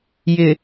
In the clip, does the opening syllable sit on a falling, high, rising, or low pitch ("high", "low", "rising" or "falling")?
low